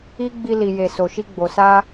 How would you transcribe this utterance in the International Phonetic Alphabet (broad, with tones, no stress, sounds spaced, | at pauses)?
i˦ ɡ͡b i˧ l i˨ j e˨ s o˨ ʃ i˧ ɡ͡b o˨ s a˧